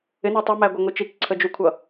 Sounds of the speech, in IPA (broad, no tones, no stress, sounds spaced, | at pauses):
ɪ n æ tˤ ʌ m æ ɡʷ ʌ ŋʷ i t͡ʃ i k ǀʰ ə d͡ʒ u kʷʰ ʌ